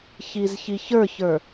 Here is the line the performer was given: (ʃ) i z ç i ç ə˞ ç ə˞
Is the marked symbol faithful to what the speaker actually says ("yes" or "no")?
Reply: no